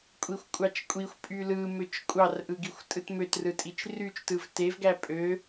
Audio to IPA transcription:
kʷʼ i xʷ kʷʼ ɑ t͡ʃ kʷʼ i xʷ pʼ y l ɯ m ø t͡ʃ kʷʼ ɑ r ʔ ɯ ɡ i xʷ tʼ ɯ t m ø t r ɯ tʼ i t͡ʃ r y t͡ʃ t ɯ v t e v ɡ æ pʼ ø

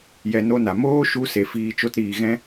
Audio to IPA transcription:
j ɛ˧ n o˦ n a˨ m oː˦ ʃ u˧ s e˨ f iː˧ t͡ʃ o˦ t ɾ iː˨ ɣ ɛ̃˦

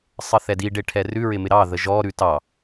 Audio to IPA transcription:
sˤ ə θ ɛ d i ɖ e ʈʰ ɛ r ʉ ɹ ɪ m ɪ ɾ ɑ ð ə ʒ ɔ ɾ ʉ t ɑ

